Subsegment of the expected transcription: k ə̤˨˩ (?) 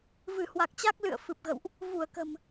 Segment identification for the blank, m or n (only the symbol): m